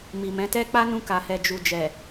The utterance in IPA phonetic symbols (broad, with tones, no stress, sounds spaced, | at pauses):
m i˨ m ɛ̃˨˦ t ɛ˦ k͡p a˦ n ũ˧ k a˨ h ɛ˨ d͡ʒ u˨ d͡ʒ ɛ˨